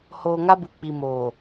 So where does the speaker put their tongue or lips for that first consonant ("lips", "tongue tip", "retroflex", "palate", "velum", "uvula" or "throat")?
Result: throat